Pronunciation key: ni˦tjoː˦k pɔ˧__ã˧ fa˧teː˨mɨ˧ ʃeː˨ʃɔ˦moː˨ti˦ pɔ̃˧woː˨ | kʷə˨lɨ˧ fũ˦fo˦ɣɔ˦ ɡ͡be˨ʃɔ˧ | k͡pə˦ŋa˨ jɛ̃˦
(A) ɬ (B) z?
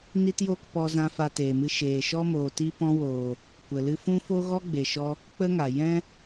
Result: B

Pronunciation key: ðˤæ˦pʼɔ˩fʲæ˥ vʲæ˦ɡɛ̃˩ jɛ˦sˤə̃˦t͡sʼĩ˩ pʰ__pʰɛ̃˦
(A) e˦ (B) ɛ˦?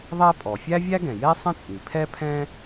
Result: B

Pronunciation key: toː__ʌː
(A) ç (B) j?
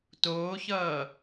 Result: A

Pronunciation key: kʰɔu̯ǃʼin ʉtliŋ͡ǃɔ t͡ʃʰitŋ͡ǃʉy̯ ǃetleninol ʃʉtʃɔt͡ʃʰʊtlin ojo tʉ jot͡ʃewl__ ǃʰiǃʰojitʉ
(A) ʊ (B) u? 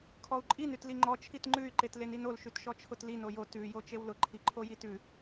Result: A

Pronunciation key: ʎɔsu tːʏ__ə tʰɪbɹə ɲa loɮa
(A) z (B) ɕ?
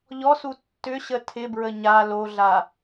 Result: B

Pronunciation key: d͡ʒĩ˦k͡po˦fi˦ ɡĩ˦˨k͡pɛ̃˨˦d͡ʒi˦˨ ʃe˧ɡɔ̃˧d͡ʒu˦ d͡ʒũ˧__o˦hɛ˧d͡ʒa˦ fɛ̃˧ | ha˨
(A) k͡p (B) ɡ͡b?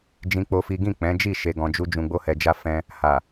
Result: B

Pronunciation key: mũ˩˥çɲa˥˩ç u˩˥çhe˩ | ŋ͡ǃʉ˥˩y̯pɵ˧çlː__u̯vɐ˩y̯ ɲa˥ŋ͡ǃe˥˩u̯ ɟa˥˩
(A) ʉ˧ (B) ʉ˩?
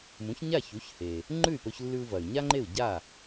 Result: A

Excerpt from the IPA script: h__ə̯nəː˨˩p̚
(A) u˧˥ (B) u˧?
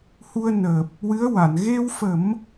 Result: B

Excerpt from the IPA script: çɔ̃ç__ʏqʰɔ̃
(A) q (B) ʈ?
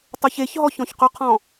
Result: A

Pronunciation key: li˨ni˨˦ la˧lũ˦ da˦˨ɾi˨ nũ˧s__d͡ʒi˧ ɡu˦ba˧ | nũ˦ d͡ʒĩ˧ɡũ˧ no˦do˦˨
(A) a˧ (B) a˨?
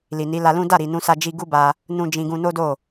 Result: A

